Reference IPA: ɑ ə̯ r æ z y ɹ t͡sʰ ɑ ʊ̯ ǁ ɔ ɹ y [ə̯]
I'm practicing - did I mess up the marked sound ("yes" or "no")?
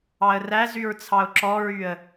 no